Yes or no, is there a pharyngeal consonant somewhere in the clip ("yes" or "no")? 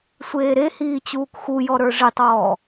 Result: no